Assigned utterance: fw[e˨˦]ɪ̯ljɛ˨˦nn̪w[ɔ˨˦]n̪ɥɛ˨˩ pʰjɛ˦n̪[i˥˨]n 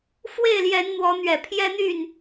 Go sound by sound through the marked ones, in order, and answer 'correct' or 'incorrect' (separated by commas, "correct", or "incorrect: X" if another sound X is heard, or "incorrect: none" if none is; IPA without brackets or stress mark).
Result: incorrect: e˥˨, correct, incorrect: y˥˨